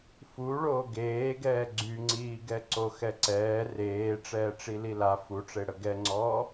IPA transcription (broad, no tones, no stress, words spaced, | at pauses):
fu ɭoːɡeːɡɛː ɡ͡ǀyŋ͡ǀiːɡɛ ǀoxɛǀɛː reː ʈ͡ʂɛːʈ͡ʂilila fuʈ͡ʂeɽə ɡɛŋ͡ǀɔː